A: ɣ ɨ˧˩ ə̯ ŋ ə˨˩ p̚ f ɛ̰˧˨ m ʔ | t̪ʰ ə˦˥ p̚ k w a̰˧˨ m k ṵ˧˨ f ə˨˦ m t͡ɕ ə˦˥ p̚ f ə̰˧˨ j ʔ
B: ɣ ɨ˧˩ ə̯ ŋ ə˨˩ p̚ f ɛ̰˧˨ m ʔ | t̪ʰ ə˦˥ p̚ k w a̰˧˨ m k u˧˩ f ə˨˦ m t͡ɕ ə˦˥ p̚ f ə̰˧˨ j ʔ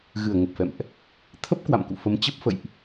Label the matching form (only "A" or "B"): A